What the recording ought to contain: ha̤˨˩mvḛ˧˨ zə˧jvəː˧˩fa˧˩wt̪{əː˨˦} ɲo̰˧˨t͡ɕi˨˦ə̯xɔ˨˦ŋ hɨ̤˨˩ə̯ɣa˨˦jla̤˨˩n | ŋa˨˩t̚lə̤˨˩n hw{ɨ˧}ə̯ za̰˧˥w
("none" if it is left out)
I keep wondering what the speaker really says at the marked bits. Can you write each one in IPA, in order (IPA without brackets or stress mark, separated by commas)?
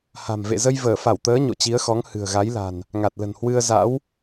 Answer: əː˨˦, ɨ˧